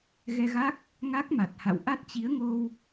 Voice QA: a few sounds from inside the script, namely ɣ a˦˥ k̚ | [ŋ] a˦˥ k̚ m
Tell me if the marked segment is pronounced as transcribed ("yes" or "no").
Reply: yes